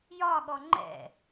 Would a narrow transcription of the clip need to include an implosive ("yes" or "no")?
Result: yes